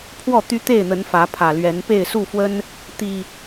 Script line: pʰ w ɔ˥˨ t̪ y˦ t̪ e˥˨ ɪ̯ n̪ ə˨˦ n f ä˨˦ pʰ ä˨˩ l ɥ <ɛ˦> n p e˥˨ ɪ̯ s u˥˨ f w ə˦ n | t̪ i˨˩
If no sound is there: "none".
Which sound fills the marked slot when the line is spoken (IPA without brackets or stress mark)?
ɛ˨˦